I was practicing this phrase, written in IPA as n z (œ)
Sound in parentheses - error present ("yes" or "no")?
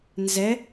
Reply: yes